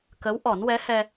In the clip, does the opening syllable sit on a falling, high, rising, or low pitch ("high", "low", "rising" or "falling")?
rising